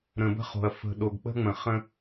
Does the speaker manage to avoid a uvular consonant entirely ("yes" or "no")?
no